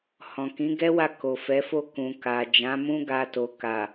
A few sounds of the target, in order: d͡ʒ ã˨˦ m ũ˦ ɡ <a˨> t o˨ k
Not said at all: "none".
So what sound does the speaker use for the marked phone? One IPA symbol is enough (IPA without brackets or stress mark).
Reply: a˧